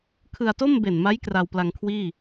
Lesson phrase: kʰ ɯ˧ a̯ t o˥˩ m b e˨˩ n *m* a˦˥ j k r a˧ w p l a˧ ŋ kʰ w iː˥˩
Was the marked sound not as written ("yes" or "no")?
no